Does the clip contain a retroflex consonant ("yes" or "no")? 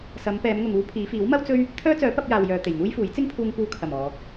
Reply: no